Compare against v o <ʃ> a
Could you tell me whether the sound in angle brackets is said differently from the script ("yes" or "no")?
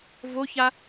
yes